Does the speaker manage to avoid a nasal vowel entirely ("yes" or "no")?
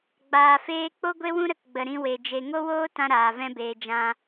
no